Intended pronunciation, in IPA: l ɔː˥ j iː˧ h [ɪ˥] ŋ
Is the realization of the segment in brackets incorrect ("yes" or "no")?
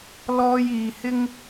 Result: no